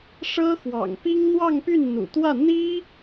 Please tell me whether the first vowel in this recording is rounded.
no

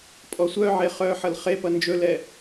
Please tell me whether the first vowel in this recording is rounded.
yes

